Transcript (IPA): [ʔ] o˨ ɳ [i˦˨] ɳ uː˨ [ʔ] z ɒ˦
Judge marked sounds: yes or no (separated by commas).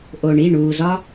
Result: yes, yes, no